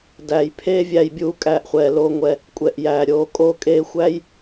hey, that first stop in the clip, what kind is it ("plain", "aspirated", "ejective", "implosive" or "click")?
plain